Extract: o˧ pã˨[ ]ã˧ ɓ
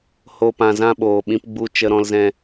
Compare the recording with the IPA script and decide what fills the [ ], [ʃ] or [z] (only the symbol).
z